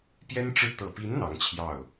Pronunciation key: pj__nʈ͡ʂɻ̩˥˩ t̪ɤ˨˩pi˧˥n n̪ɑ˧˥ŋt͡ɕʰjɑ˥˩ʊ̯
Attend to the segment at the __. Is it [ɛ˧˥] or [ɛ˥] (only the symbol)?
ɛ˥